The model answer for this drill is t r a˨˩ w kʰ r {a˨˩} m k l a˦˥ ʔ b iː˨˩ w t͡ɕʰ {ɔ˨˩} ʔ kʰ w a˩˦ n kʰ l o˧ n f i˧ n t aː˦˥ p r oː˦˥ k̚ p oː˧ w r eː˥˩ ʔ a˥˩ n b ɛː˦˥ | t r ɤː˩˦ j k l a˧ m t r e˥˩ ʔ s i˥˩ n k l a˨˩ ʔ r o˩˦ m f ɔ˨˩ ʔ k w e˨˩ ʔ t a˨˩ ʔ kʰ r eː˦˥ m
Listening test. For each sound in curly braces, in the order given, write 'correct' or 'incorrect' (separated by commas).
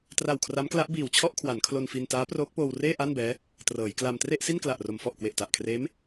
incorrect, incorrect